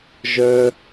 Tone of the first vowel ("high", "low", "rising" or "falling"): high